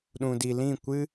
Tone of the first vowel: low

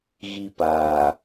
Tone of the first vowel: high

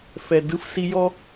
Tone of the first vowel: low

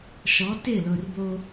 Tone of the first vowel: rising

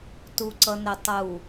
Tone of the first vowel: low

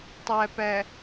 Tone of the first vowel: low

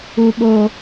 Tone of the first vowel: high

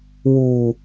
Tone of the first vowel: low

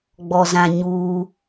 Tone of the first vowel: low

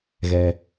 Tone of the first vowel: low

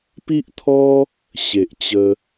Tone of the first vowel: high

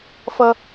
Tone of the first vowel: high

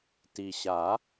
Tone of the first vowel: low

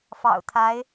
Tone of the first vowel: low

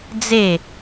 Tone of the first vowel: falling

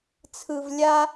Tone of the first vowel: high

